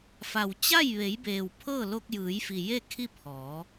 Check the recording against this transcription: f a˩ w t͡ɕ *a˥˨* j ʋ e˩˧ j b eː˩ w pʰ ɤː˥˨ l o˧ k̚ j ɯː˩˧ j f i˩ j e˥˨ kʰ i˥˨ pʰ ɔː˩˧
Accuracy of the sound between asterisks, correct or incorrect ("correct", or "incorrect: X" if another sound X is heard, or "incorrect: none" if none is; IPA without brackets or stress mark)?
correct